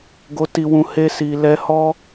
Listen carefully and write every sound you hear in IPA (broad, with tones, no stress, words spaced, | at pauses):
ɡo˧ti˧wũ˧ he˧si˨ lɛ˧hɔ˦